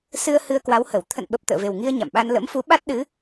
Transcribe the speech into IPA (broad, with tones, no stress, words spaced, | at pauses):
sɨ˧ə̯ hɨ˧ə̯kwa˨˦whə˧˩w t̪ʰə̰˧˨nɓə˨˩p̚ t̪ə̰ː˧˨ve˨˩wŋi˧ə̯ ɲa̰˧˨mɓa˧n lə̰˧˥mfu˨˦ɓa˦˥t̚ ɗɨ˨˦